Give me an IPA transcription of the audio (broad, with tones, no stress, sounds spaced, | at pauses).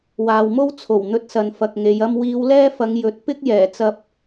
w aː˨ w m o˥ w t͡sʰ o˨˩ w n̪ ɵ˧ t̚ s ɐ˨ n f ɐ˨ k̚ ŋ e˨˧ j ɐ˥ m w iː˨˧ w l ɛː˥ f ɐ˨˧ ŋ j ɵ˨˥ t̚ p ɪ˥ k̚ j ɛː˨˩ t͡s ɐ˧ p̚